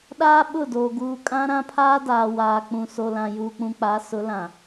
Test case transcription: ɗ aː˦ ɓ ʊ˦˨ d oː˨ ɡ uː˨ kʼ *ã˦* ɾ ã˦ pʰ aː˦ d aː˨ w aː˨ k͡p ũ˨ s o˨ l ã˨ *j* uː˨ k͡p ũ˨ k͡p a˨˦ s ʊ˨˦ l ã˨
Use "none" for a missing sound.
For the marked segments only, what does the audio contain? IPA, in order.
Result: ã˦, j

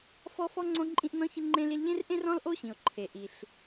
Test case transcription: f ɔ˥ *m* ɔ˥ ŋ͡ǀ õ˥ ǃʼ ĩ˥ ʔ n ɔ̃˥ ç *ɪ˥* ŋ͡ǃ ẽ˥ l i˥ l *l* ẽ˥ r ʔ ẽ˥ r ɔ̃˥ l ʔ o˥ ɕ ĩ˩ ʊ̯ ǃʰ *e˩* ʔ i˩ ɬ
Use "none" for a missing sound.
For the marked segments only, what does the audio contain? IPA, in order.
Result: f, ɪ˥, ʎ, e˩

